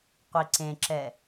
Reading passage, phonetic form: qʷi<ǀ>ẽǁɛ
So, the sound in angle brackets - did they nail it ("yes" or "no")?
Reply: yes